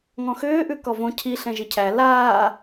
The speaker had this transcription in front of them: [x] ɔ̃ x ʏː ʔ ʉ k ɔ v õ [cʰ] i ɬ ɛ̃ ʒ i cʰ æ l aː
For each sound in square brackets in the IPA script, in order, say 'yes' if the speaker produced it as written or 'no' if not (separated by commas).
no, yes